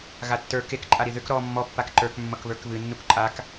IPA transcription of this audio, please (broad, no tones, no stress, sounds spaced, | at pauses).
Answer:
ɣ a tː ə˞ k e k ǃʼ a ɾ i ð ʏ k ɾ ɔ mː ɔ pː a k ǃ ə˞ k mː ʌ k β ə˞ k β ɨ nː u k ǃʼ a k